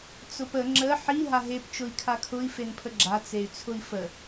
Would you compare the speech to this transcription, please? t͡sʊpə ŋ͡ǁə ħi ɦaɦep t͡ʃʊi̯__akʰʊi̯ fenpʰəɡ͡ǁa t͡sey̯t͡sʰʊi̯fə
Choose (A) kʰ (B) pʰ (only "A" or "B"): A